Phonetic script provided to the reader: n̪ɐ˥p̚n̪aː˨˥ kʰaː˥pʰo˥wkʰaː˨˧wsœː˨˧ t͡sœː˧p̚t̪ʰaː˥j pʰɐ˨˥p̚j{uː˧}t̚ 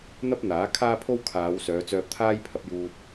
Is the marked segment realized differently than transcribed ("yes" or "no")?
no